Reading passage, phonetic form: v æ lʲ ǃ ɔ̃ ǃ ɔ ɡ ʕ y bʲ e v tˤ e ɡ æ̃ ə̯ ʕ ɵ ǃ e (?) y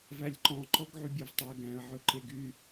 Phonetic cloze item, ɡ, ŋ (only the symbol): ɡ